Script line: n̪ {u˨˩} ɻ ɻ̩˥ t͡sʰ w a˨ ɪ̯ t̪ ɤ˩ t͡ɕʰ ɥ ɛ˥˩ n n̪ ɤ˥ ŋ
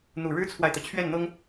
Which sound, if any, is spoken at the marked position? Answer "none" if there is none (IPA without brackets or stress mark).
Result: u˨˩